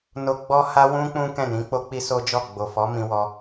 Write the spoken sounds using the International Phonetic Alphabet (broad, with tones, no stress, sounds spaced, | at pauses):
n o˨ ɡ͡b ɔ˧ h a˧ w ũ˦ k͡p ũ˦ k ɛ̃˦˨ n ĩ˨˦ k͡p o˦ k͡p i˦ s o˦ d͡ʒ ɔ˦˨ ɡ͡b o˨ f ɔ˨˦ m ĩ˧ w ɔ˧